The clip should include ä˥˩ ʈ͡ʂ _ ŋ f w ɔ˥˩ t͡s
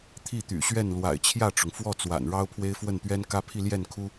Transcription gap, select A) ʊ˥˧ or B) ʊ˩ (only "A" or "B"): B